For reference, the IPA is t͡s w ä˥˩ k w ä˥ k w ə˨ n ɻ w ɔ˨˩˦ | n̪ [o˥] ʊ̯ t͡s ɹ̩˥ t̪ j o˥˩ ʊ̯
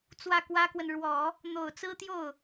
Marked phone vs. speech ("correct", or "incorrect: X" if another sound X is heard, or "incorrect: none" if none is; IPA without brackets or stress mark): incorrect: o˨˩